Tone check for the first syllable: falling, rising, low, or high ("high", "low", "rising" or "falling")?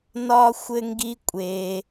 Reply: high